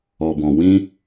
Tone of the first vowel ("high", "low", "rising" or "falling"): low